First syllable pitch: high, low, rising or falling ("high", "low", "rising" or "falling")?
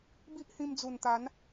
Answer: high